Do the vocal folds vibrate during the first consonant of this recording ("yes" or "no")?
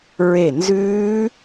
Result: yes